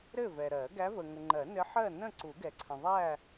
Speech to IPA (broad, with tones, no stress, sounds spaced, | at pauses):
ɾ ɘ˥˨ v ɛ˨ ɾ ɜ˨˩˦ ɡ æ˧˥ v ə˨ ŋ ə˨ ŋ͡ǃ ɜ˨˩˦ n ɘ˧˥ ħ ɜ˥˨ n ə̃˥˨ ǀ u˨˩˦ ɡ ɛ˨ ǀʰ ə̃˨ ðˤ æ˥˨